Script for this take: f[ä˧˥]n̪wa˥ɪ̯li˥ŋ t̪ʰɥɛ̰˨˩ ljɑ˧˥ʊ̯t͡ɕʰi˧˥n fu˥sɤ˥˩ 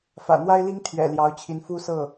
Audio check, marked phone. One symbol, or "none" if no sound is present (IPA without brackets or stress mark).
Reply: ä̰˨˩